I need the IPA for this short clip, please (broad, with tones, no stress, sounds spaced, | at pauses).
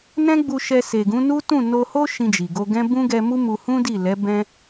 n ɛ̃˦ ɡ͡b u˧ ʃ ɛ˧ s e˨ ɡ ũ˨˦ n u˦ t ũ˦˨ n o˧ h o˦ ʃ ĩ˧ d͡ʒ i˨ ɡ o˧ ɡ ɛ̃˦ b ũ˦ ɡ ɛ˧ m u˦ m u˧ h ũ˦ d i˦˨ l ɛ˨˦ b ɛ̃˦